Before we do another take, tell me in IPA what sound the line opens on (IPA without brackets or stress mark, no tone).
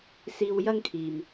s